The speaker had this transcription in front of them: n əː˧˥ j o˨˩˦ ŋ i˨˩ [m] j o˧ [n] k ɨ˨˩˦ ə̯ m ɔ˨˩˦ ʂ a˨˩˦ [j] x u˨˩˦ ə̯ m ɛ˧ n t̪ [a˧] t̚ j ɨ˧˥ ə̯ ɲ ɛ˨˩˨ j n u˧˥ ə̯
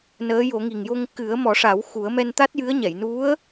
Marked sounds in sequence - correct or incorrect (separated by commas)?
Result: incorrect, incorrect, incorrect, incorrect